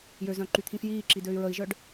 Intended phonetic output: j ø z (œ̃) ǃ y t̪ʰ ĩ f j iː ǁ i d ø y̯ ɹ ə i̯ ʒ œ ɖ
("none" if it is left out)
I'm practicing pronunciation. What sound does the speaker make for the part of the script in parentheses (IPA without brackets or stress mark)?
œ̃